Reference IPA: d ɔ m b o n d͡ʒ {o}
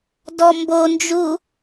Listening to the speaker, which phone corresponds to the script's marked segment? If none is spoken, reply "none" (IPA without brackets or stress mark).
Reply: u